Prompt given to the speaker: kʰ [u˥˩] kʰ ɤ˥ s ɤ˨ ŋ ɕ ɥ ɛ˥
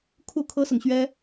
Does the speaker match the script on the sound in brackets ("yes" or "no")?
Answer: yes